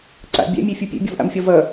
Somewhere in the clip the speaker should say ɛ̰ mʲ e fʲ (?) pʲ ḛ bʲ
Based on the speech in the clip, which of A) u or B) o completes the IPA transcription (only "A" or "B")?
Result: A